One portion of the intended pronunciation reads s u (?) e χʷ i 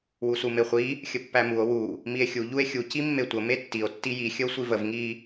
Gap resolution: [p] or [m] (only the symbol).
m